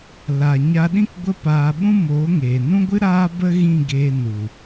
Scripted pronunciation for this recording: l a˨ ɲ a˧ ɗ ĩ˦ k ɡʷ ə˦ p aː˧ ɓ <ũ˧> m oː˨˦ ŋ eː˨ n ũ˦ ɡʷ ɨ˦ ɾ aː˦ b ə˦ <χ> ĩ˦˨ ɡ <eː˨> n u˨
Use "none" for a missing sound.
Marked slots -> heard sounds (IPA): ũ˦, ɣ, eː˧

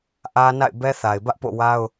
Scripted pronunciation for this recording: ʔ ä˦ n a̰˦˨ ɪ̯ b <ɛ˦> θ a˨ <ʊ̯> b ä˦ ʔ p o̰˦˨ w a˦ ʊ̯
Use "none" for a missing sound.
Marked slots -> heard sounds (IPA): ɛ˦, ɪ̯

